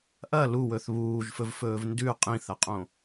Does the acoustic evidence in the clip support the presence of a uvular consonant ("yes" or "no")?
yes